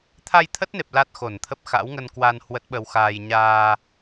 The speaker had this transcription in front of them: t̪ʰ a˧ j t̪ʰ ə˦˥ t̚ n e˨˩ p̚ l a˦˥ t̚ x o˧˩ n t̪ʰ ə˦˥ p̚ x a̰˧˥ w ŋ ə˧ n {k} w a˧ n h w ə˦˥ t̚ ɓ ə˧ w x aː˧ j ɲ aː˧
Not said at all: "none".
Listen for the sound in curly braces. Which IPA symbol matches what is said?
k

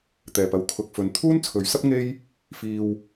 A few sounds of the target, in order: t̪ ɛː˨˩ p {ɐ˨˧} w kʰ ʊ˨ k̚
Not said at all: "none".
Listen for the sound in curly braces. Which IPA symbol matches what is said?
ɐ˨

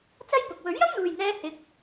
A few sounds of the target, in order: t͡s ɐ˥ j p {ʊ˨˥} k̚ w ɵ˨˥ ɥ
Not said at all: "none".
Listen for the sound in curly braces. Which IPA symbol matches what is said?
ʊ˨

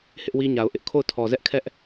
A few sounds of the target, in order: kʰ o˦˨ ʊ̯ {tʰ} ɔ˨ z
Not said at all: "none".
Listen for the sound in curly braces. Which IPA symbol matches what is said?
tʰ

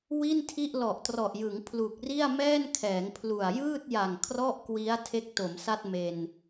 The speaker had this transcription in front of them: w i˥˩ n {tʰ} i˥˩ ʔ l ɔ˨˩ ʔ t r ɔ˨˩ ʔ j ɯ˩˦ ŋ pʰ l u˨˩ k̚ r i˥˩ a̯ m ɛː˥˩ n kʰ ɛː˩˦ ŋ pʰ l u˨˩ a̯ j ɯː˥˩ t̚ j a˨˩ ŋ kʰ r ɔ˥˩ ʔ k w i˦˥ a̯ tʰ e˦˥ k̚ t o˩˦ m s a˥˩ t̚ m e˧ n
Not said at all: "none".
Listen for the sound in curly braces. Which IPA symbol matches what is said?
tʰ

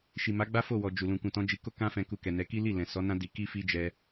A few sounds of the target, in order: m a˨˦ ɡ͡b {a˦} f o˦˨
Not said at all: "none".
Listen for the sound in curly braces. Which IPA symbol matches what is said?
a˦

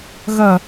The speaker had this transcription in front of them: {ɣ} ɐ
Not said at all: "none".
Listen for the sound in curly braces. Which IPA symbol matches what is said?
ɣ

